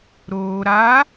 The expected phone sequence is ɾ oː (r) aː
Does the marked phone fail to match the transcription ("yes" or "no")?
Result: yes